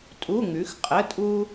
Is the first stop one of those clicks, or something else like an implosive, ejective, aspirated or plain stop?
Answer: ejective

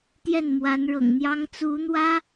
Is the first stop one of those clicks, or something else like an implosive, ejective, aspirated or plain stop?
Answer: plain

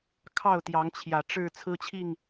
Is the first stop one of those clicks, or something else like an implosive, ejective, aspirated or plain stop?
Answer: aspirated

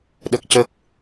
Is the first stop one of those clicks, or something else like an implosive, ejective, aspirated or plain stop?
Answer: implosive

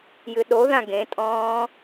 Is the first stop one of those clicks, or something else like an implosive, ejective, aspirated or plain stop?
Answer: implosive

